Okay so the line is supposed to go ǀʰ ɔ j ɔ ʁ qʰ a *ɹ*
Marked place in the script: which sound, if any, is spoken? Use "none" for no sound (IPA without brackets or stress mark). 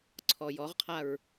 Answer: ɹ